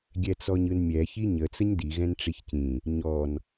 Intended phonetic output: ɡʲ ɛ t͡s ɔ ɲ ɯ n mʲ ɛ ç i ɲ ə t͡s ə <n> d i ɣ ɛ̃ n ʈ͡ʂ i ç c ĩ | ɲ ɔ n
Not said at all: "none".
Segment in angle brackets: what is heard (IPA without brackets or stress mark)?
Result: ɲ